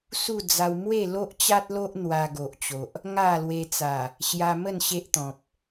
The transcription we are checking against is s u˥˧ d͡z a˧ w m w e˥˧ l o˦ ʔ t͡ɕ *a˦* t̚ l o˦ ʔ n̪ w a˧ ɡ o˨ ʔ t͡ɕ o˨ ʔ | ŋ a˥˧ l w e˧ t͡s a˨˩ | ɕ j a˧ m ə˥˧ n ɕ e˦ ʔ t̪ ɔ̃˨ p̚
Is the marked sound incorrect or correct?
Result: correct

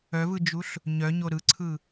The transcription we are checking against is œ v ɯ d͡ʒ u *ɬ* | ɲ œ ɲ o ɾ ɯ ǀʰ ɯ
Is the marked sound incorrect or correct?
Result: correct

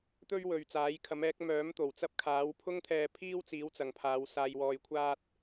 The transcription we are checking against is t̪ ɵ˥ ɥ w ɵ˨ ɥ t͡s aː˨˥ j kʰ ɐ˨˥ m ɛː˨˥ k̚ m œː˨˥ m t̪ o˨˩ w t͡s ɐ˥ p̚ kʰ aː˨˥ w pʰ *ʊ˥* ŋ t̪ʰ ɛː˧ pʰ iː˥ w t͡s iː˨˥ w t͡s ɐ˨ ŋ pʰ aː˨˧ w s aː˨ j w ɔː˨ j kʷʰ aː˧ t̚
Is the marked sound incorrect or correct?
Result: correct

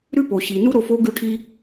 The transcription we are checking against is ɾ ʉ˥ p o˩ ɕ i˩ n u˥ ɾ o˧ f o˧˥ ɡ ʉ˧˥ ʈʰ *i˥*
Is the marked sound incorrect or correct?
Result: correct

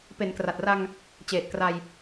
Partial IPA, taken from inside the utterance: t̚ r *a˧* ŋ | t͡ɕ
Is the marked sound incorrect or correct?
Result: correct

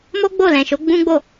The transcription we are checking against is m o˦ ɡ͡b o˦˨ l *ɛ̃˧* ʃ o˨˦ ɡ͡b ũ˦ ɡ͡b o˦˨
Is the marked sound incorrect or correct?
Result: incorrect: ɛ̃˨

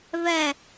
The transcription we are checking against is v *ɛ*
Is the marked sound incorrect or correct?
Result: correct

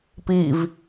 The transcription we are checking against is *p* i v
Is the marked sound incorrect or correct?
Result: correct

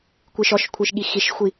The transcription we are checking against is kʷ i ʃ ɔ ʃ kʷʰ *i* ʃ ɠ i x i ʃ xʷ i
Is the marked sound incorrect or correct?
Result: correct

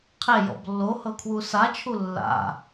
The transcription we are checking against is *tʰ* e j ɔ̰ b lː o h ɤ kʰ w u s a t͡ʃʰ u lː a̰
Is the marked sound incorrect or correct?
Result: incorrect: qʰ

